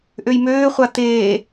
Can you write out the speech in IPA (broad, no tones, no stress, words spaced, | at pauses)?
ʔøjmøːχʷa t̪eː